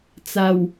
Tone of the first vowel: low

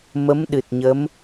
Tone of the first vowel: rising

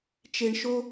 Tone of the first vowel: low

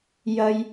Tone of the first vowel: high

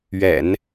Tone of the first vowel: low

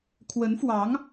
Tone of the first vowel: rising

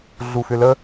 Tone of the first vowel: low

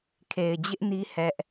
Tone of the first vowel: low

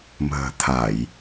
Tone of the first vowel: low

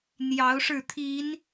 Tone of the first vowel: rising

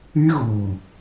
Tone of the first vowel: high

